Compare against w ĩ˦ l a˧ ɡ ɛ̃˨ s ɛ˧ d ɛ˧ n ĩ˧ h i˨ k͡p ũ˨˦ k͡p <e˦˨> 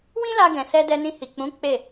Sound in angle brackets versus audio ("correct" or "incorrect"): correct